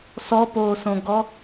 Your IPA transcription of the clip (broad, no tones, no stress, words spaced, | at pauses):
sɔpoːsõɡɔ